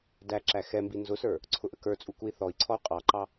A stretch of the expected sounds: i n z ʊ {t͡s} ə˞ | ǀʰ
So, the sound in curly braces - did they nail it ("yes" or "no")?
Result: no